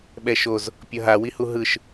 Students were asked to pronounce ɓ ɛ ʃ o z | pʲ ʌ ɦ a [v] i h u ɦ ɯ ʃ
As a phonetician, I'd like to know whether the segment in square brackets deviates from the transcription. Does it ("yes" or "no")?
yes